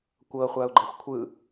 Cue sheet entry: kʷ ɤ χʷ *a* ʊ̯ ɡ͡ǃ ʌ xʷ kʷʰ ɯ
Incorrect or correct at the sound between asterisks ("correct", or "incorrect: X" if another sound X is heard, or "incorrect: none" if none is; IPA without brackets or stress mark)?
correct